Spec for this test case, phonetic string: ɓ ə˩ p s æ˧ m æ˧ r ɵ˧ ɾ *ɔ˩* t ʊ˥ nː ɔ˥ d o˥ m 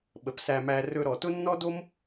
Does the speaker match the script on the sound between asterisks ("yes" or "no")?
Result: yes